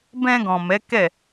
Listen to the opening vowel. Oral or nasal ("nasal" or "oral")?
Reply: nasal